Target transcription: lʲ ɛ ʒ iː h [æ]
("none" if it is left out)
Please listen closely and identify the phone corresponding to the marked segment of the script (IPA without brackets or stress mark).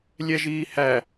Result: æ